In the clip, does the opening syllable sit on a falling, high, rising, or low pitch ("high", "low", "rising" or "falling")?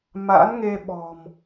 rising